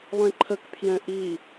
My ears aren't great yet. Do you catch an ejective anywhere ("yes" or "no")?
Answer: no